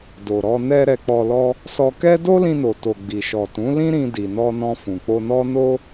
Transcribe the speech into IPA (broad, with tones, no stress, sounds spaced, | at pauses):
d o˨ ɾ ɔ˧ n ɛ˧ ɾ ɛ˧ k͡p ɔ˧ l ɔ˦ | s ɔ˧ k ɛ˦ d o˦ l ĩ˧ n o˨ t o˨ ɡ͡b i˨ ʃ ɔ˨ t ũ˨˦ l ĩ˦ ɾ ĩ˧ d i˨ n ɔ˧ n ɔ̃˧ f ũ˨ k͡p o˧ n ɔ˦ n o˦